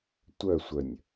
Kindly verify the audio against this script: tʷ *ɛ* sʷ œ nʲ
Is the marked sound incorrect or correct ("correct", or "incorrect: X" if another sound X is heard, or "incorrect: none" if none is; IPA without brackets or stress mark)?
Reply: incorrect: œ